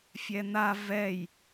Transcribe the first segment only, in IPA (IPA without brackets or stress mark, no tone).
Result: fʲ